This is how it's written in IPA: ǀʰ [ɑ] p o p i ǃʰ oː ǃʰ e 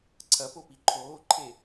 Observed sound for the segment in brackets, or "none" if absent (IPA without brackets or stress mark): ɐ